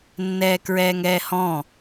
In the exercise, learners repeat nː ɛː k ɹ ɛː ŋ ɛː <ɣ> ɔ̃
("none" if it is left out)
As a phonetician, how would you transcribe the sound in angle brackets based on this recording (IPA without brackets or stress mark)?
h